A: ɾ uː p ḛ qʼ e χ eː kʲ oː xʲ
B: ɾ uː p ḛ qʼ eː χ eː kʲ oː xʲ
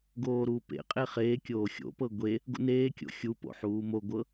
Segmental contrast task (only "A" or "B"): A